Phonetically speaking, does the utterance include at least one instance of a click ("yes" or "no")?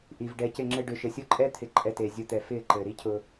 yes